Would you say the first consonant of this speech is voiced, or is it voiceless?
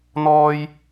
voiced